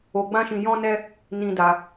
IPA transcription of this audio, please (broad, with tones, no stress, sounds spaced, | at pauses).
o˧ ɡ͡b ã˦ ʃ ĩ˧ j ɔ̃˦ n ɛ˦ | n ĩ˦ d a˧